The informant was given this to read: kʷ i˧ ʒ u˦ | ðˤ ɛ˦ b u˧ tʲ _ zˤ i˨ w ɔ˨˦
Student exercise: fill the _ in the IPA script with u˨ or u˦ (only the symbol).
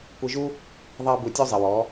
u˦